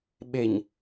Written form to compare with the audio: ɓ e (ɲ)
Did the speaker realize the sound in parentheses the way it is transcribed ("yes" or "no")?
yes